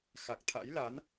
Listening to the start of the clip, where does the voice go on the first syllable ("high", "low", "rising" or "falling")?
low